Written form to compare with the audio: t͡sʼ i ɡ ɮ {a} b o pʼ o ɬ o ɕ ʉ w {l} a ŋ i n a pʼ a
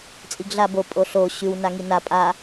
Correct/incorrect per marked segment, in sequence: correct, incorrect

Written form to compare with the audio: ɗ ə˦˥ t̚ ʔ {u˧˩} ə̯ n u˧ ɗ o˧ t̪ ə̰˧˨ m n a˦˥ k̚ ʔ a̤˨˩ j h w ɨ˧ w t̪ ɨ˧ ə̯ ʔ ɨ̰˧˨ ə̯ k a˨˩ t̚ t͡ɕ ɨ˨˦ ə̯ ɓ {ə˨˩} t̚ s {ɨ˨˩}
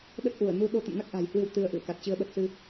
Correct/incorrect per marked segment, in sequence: correct, correct, incorrect

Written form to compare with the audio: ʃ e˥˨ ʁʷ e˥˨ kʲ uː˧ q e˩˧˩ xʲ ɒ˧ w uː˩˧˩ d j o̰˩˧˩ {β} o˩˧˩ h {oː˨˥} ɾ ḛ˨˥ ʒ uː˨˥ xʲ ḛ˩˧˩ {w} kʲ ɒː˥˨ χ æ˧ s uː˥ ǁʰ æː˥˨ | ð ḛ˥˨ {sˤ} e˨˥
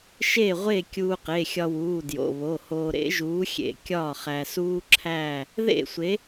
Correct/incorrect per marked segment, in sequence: correct, incorrect, incorrect, incorrect

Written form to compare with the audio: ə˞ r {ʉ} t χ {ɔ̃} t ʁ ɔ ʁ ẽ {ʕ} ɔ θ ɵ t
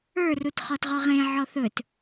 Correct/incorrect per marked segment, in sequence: incorrect, incorrect, correct

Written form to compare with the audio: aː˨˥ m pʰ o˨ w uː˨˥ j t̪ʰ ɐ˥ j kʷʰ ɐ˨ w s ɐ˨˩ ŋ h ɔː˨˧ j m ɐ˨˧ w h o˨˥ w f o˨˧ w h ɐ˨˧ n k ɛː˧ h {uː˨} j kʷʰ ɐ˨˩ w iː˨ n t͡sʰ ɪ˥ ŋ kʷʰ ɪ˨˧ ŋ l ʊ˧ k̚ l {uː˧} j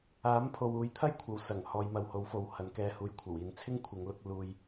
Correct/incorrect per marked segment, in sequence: correct, correct

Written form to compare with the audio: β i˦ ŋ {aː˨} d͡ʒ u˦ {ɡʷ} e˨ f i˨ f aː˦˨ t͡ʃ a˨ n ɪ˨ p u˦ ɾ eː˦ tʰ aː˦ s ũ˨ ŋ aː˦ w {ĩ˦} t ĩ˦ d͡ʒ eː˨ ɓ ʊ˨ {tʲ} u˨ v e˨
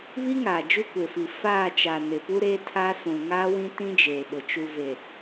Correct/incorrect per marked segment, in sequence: correct, incorrect, correct, incorrect

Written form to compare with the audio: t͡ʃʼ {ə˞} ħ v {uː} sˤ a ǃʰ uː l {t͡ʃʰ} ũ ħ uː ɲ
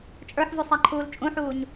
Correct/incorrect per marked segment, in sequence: correct, incorrect, incorrect

